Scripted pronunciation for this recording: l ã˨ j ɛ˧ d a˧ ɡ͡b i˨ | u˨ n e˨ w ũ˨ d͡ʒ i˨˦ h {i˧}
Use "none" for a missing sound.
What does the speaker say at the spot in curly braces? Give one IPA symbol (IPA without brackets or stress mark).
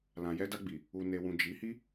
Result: i˦